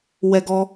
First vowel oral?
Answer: yes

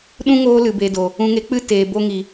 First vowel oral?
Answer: no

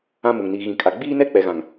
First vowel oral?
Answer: no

